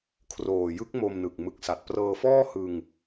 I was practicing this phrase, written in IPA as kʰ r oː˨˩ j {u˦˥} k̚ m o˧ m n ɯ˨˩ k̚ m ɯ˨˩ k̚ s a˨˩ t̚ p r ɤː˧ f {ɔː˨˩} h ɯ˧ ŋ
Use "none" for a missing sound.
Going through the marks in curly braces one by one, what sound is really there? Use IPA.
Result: ɯ˦˥, ɔː˥˩

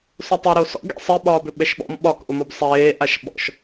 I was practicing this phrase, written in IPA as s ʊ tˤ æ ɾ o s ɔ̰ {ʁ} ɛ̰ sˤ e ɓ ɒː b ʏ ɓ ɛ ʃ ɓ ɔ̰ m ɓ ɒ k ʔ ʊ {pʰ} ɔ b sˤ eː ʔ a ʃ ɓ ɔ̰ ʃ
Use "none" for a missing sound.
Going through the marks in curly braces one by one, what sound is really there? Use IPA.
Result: ɡ, m

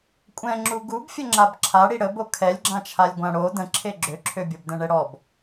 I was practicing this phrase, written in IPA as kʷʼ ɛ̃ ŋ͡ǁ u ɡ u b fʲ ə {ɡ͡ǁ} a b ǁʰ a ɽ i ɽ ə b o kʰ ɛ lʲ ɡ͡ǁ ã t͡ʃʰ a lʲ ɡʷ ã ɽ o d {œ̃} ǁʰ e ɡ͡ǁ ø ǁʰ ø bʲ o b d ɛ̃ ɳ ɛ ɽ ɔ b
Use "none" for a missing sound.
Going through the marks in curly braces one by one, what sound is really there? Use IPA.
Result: ŋ͡ǁ, ə̃

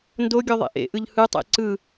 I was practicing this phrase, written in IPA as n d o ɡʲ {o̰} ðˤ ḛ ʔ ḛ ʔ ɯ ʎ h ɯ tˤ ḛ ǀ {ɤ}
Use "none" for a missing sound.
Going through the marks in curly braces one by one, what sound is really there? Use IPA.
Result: o, ɯ

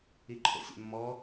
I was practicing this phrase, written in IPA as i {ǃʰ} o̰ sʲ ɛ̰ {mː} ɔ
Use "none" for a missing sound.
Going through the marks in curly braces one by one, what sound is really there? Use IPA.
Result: ǃʰ, mː

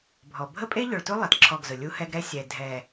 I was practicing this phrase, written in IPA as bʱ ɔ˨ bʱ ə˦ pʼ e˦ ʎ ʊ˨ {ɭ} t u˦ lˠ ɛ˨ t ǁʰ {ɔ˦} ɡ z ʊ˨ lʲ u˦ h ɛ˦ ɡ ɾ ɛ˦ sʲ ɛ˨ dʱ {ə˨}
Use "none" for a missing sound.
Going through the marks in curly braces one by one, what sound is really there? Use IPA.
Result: ɭ, ɔ˦˨, ɛ˨

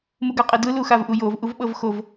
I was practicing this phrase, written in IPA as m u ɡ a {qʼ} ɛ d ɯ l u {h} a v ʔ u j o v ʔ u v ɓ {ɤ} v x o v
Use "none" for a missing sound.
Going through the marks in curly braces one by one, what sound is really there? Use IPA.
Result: qʼ, x, ɤ

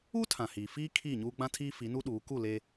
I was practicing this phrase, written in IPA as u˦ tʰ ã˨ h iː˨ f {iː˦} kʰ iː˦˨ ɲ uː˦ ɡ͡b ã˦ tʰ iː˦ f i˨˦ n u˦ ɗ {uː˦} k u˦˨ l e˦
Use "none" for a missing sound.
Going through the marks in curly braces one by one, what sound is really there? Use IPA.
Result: iː˦, uː˨˦

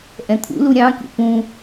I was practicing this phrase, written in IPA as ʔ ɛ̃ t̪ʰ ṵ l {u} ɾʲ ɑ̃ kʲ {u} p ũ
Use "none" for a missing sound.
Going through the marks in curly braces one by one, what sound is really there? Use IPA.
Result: u, ṵ

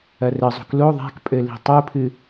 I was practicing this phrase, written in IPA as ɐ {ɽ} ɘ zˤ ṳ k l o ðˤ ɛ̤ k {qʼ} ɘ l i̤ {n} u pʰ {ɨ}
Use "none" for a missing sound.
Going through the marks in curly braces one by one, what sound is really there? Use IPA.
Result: r, pʼ, tˤ, ɨ

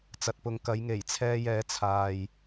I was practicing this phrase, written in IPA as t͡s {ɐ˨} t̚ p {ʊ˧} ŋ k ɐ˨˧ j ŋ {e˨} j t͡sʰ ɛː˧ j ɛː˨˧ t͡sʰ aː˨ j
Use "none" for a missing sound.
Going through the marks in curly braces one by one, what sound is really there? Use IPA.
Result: ɐ˨, ʊ˨, e˨˩

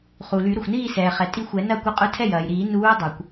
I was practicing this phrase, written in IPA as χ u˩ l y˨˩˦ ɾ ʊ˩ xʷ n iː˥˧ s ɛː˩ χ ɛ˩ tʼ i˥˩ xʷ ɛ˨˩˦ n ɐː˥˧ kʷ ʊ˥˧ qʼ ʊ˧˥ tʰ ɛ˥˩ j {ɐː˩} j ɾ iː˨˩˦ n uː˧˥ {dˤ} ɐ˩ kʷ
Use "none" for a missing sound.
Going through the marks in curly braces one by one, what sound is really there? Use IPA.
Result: ɐː˩, dˤ

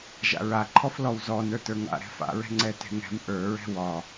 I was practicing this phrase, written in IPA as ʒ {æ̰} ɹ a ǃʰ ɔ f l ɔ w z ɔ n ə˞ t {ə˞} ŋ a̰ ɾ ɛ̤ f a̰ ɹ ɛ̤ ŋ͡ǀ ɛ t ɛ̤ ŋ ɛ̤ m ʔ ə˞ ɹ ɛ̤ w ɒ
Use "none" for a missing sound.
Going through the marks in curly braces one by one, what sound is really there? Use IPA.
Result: a̰, ə˞

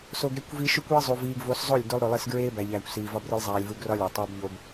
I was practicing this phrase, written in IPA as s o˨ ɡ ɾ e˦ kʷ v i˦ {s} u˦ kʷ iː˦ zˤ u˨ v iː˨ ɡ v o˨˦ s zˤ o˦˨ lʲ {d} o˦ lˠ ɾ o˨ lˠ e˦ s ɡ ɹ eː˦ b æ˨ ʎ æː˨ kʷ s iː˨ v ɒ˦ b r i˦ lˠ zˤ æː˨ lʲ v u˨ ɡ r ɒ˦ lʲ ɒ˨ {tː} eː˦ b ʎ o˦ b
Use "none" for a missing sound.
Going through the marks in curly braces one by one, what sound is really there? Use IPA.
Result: ʃ, d, tˤ

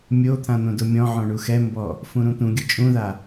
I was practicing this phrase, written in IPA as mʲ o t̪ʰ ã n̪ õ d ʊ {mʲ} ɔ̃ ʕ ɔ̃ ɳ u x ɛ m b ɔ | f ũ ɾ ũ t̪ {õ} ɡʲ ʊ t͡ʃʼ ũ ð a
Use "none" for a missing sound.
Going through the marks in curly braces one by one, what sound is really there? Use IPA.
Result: mʲ, ũ

